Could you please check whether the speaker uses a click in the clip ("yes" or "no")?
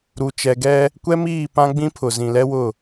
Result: no